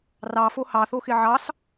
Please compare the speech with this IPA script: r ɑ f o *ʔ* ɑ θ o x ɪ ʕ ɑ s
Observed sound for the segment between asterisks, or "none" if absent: h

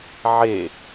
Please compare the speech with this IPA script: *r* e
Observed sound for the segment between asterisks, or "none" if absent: ʕ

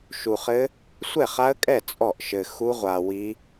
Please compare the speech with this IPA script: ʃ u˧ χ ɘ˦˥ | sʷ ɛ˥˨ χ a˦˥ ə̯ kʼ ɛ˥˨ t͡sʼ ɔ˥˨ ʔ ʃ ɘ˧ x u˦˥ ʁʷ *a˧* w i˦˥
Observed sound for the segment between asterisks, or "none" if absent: a˧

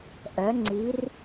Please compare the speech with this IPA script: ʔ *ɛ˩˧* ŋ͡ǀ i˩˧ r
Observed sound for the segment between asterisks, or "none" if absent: œ˩˧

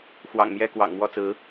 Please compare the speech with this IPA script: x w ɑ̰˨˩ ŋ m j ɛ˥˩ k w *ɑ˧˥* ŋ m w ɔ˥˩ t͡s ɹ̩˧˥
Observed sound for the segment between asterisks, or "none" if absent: ɑ̰˨˩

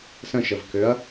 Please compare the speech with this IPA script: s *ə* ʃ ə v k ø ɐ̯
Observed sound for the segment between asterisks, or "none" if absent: ə̃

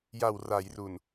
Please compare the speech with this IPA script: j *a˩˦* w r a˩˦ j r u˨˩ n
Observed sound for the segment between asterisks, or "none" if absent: a˨˩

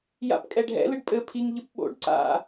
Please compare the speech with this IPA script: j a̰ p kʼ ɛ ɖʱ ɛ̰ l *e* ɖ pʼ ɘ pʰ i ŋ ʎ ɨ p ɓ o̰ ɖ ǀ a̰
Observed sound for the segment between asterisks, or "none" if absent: ɨ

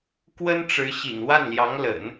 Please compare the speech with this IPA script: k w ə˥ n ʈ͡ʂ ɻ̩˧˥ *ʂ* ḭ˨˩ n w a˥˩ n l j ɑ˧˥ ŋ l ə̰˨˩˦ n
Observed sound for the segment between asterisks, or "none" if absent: ɕ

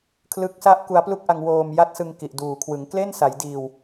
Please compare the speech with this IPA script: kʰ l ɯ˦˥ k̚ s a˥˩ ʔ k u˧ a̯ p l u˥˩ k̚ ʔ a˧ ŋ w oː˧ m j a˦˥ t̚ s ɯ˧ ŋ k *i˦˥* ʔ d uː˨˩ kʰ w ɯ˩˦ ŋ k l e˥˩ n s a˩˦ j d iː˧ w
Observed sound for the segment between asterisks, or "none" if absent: i˨˩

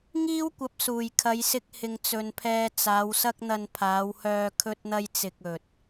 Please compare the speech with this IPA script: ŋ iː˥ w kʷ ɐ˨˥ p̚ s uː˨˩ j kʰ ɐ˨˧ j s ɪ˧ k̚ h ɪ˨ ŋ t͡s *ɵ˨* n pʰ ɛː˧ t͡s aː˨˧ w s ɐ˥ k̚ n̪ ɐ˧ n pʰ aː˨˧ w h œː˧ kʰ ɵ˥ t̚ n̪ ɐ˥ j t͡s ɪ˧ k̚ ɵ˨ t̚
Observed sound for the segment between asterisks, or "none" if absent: ɵ˨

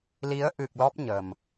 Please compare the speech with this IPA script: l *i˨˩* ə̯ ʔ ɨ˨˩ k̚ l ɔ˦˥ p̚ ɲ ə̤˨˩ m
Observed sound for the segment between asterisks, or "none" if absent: i˨˦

